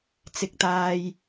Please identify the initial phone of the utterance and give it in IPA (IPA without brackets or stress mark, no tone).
t͡s